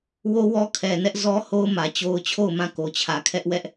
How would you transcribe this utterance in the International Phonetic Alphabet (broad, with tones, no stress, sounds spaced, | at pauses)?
w o˦ w ɔ˦ kʰ ɛ˨ n ɛ˦ ʔ z ɔ˦ h o˦ ʊ̯ m ä˨ t͡ɕ o˦ ʊ̯ t͡ɕʰ o˦˨ ʊ̯ m ã˦˨ k o˨ t͡ɕʰ ä˨ kʰ ɛ˦ ʔ w ɛ˦ ʔ